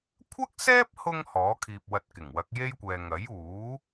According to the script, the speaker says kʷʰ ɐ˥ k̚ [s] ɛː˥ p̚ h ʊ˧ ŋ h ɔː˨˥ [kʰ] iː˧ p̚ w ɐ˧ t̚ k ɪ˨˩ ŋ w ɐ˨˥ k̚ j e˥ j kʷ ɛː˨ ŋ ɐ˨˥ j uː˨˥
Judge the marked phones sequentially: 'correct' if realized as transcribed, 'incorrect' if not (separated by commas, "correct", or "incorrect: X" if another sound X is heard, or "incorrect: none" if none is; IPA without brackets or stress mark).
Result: correct, correct